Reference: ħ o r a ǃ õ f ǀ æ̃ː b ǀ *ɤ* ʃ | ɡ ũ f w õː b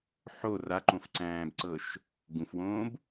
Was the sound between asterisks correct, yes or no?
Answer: yes